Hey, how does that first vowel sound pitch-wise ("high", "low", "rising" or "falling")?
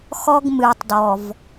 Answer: high